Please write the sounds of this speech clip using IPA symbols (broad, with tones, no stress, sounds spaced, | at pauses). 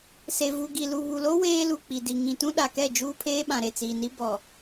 s e˨ v u˨ ɡ i˨ l u˨ β u˨ l o˦ w eː˦ l u˨ k͡p i˨ d i˨ ŋ ĩ˨ t ũ˦ ɗ a˨ k ɛ˦˨ d͡ʒ uː˦ pʰ eː˦ ɓ ã˨ ɾ e˨ t͡s iː˨ n i˦ b ɔ˨